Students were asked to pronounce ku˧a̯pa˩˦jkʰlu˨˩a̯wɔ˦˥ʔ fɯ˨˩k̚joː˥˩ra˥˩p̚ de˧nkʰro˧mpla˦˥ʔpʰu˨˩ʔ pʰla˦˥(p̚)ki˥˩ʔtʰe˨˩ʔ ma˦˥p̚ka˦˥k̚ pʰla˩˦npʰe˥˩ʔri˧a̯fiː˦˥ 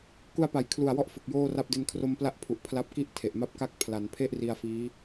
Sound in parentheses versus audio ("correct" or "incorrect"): correct